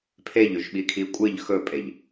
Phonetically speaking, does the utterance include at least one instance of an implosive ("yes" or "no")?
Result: yes